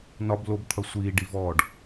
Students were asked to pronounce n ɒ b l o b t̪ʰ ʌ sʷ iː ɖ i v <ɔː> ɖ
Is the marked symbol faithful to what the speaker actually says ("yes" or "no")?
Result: yes